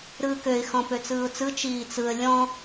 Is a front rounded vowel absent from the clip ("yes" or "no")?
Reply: no